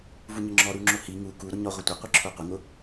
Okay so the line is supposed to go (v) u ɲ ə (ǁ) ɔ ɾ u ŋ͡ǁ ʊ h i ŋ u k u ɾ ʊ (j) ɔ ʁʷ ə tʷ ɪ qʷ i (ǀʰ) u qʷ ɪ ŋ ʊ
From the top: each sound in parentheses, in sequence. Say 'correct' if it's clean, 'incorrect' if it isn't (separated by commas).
correct, incorrect, incorrect, incorrect